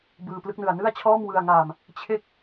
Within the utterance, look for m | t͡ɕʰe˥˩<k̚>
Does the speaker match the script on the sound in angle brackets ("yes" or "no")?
yes